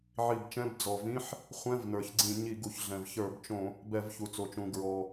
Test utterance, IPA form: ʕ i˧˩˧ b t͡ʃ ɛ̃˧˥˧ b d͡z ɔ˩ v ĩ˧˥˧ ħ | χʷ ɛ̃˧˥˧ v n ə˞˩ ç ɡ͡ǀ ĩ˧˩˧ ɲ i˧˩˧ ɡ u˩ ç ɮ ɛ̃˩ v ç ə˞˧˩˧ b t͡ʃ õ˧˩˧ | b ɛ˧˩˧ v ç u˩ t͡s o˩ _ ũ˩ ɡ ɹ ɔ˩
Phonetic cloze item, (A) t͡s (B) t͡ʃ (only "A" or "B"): B